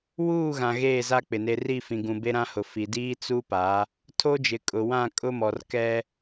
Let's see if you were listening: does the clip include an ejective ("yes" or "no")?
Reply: yes